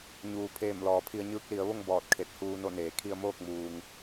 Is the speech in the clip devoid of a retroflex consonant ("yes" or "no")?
yes